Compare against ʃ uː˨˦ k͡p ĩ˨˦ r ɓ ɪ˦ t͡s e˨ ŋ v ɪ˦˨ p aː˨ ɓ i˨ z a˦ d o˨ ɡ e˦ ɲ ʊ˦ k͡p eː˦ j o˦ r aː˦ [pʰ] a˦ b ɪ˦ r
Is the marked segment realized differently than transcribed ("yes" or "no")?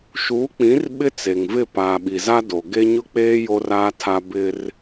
yes